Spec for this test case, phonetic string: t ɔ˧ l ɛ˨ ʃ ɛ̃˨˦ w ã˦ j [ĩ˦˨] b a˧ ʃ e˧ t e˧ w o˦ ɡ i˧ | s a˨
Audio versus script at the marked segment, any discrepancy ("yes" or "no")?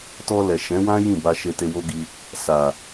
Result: no